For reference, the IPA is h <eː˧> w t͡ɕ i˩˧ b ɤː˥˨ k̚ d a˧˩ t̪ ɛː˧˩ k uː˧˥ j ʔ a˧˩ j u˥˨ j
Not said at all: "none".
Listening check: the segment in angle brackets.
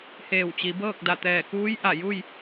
eː˧˩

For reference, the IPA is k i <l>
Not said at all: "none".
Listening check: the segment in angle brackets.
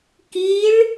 ɭ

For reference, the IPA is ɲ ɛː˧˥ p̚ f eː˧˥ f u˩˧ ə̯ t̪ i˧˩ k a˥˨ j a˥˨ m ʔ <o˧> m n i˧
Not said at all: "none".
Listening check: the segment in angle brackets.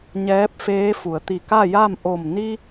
o˧˩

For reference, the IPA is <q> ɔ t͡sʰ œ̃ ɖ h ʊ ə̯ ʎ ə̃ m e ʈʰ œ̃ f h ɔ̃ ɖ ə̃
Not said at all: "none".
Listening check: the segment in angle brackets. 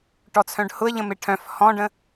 ʈ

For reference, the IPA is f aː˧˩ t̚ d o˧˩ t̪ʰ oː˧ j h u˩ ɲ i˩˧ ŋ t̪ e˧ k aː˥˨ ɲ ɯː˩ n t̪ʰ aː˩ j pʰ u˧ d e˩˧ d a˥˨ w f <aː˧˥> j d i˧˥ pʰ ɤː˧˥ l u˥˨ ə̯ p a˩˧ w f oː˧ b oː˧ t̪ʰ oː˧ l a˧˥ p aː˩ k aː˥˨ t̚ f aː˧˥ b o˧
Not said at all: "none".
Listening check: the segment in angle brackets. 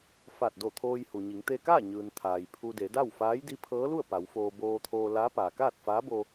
aː˧˥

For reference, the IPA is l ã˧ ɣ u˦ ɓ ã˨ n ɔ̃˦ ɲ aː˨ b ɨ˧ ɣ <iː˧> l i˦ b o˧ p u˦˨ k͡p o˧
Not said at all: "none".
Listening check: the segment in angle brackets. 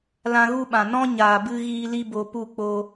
iː˧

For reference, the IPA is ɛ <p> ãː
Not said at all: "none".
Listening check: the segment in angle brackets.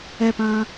p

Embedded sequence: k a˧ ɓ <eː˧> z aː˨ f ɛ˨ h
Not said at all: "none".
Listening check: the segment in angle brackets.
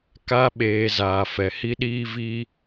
eː˨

